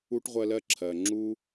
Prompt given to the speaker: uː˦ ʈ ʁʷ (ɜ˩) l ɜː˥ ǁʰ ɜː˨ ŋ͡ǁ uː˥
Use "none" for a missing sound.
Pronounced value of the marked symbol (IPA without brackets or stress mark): ɜ˨